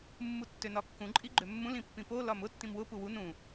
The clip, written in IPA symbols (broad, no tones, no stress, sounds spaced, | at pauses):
mː u tː ø n ɒ kː ũ ǃʼ i ɡ͡ǃ ø mː ũ l ĩ pː ĩ p o l ɒ m ʊ tː ĩ m w ʊ p u w u n ũ